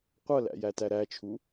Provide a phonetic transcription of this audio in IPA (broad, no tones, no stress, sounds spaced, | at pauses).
qʷ ʌ l æ̰ j æ t æ ɾ æ t͡ʃʰ u